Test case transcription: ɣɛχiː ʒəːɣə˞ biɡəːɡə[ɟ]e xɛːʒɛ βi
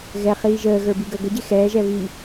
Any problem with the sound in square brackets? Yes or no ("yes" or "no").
no